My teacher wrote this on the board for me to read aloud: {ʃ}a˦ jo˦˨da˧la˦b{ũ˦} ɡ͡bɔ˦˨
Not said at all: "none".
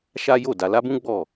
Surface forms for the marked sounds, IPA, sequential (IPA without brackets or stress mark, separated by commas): ʃ, ũ˦